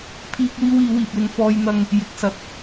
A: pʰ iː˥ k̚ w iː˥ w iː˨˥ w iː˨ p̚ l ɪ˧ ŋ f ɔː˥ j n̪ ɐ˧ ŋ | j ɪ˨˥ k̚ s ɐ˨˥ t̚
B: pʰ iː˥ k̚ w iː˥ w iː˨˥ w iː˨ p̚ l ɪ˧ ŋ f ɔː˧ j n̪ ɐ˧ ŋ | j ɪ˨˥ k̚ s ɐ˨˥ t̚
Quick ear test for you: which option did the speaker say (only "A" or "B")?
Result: B